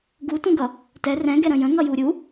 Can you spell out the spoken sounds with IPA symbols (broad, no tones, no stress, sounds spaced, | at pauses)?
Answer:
ɡ u t ũ ɡ ʌ | t ɛ r ɛ̃ ɡ ɛ ɾ ə̃ j ə̃ ŋ ʌ j u ɾʲ u